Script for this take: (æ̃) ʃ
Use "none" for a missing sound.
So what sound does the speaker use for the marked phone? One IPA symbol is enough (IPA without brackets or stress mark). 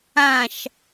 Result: ã